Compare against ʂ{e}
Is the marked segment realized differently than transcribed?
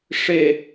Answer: no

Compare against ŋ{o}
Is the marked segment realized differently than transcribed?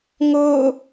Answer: yes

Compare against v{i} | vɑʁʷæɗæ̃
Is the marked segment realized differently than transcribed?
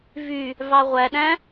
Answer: yes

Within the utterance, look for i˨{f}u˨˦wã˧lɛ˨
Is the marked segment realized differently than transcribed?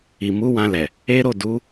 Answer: yes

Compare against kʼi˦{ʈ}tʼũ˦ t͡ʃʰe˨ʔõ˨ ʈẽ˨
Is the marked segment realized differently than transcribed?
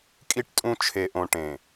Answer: no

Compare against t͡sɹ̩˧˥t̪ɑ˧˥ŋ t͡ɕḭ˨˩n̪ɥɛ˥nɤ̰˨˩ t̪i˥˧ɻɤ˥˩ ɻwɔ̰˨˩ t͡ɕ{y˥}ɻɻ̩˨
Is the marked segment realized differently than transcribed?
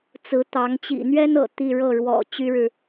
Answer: no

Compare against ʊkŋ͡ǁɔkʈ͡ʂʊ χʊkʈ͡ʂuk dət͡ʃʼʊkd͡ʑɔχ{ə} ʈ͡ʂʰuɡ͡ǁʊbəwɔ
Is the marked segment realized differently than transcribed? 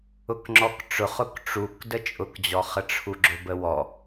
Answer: no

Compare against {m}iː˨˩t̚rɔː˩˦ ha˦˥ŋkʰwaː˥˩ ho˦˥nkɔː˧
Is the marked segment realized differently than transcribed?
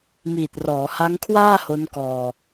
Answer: no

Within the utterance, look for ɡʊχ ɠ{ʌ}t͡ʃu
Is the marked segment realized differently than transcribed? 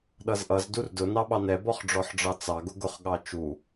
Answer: yes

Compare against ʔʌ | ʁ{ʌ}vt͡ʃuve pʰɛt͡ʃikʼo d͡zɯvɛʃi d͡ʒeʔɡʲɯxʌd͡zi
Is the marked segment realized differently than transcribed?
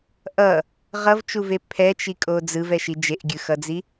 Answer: no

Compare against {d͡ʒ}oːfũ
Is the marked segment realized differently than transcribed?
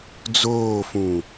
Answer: yes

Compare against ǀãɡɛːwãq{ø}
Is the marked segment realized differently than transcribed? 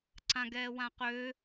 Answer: no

